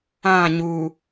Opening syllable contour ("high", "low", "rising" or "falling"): falling